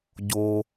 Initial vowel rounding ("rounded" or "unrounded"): rounded